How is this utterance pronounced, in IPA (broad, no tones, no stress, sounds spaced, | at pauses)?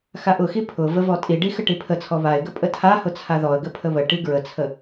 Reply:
x a ʔ ʊ x i pʰ ʊ v ə v ɔ tʼ i ɖ i x ə ʈ i pʰ ə t͡sʰ ɔ β a ɪ̯ ɡ ə pʼ ə tʰ a h ʊ t͡sʰ a ð ɔ ə̯ ɡ ə pʰ ə β ə ʈ i ɡ ɹ ə t͡sʰ ə